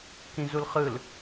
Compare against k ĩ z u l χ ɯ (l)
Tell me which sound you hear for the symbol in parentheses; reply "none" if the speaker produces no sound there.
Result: l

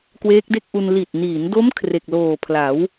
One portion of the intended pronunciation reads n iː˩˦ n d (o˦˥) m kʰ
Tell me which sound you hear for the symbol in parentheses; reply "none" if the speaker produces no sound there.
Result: o˦˥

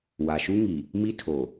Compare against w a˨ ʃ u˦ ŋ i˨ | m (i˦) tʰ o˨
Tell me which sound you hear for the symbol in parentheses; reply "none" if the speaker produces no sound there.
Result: i˦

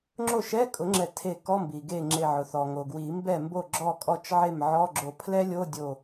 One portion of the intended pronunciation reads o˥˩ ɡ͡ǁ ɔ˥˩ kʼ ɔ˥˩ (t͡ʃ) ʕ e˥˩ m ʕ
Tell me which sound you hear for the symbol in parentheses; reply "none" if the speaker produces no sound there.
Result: t͡ʃ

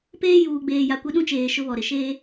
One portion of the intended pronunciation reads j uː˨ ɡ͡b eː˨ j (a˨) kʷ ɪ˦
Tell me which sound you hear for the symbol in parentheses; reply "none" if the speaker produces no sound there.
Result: a˨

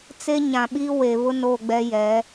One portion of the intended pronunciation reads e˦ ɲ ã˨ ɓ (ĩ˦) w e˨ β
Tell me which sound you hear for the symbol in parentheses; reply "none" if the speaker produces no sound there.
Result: i˦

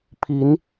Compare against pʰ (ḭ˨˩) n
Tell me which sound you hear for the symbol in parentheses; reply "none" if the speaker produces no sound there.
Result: i˧˥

